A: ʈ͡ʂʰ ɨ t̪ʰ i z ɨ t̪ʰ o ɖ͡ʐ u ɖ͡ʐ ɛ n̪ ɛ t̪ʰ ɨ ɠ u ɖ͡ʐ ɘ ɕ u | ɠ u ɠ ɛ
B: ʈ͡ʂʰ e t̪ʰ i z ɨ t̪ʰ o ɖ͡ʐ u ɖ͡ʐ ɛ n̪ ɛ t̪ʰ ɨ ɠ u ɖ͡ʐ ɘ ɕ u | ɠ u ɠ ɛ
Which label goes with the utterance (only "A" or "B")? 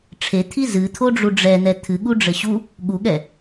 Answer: B